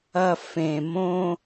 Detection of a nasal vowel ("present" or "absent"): present